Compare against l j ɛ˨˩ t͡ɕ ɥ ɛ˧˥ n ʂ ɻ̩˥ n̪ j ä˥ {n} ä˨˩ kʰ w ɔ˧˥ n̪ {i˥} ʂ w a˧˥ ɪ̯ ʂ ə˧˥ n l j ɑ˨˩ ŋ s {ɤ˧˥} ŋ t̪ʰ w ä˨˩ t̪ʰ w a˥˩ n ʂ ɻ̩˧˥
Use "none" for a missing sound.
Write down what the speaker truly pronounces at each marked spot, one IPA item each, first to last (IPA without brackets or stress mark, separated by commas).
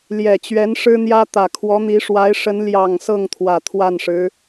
t̪, i˧˥, ɤ˥˩